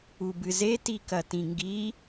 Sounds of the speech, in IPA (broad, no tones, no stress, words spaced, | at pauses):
ubɨze tikɐtĩŋɡi